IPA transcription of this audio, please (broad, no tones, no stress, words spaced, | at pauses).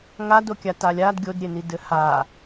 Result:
ŋadokʲa talʲad ɡʲodɾʲeni dɘha